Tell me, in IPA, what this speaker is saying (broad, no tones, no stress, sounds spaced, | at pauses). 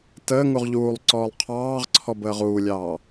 t əː ŋ u ʁ ʎ uː lˠ ǀ ɔː lˠ qʰ ɑː ʁ ǀʰ ɔ b əː ʁ uː lʲ ɑː